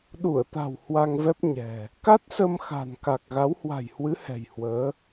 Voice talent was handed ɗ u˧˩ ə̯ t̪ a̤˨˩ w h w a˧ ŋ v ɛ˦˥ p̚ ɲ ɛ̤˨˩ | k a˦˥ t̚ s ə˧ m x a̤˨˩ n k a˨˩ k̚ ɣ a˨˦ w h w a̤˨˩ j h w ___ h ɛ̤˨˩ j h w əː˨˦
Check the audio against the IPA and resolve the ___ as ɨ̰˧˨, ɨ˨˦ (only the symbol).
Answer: ɨ˨˦